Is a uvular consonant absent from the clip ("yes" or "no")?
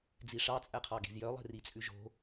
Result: no